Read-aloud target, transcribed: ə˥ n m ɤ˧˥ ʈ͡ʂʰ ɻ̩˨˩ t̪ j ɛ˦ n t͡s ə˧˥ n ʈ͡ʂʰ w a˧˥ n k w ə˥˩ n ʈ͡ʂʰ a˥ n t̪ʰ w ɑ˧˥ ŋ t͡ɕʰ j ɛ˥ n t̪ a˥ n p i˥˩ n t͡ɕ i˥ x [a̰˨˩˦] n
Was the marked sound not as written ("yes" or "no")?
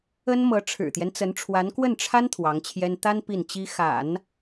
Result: no